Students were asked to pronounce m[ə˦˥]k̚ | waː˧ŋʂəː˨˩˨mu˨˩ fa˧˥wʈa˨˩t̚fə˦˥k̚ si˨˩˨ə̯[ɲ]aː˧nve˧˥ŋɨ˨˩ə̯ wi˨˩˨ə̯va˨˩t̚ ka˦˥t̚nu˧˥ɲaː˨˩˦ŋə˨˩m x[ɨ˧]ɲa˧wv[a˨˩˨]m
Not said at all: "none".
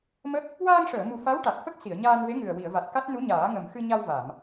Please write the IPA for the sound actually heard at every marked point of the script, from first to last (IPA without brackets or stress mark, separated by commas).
ə˦˥, ɲ, ɨ˧, a˨˩˨